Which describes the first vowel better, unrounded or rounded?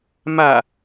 unrounded